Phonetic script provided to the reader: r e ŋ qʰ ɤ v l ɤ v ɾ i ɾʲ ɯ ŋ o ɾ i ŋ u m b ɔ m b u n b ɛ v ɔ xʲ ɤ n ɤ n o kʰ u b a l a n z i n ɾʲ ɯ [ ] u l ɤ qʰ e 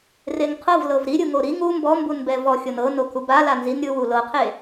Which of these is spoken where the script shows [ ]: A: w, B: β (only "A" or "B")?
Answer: A